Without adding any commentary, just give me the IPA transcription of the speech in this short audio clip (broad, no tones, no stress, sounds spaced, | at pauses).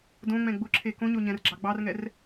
d õ ŋ͡m ɛ̃ ɡ͡b ʊ ǁʰ e k õ ɲ o ɲ ɛ̃ r ɡ͡ǁ ɑ ɡ͡b ɑ r ŋ ɛ r